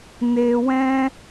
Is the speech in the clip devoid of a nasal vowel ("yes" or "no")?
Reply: no